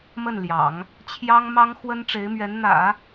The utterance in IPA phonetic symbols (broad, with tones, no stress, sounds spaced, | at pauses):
m ə˥˩ n l j ɑ̰˨˩˦ ŋ | t͡ɕʰ j ɑ˥ ŋ m ɑ˥ ŋ x w ə˥ n ʈ͡ʂ e˧˥ ɪ̯ m ɥ ɛ˧˥ n n̪ ä̰˨˩˦